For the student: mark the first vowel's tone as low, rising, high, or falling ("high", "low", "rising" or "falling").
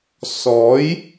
rising